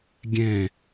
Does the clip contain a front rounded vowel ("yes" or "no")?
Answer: no